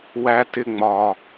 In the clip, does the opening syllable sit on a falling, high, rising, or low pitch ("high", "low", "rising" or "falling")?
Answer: high